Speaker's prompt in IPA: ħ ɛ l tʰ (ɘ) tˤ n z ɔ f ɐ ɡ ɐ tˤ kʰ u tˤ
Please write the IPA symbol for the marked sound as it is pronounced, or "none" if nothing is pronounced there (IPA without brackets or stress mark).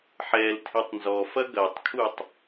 e